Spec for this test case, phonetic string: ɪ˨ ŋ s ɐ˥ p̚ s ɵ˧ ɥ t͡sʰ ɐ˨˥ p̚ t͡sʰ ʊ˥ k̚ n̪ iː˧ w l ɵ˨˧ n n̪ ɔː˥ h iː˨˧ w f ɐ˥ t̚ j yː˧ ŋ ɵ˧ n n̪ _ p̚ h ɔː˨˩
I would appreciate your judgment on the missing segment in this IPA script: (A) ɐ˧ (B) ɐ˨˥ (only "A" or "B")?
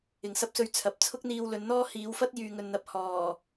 A